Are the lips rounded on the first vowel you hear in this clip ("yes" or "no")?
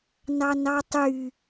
no